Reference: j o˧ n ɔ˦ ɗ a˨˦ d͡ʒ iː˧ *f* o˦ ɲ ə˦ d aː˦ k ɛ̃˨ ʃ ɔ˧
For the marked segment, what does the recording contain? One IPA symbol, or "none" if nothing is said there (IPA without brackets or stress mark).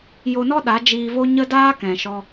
v